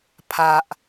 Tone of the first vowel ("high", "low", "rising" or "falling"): low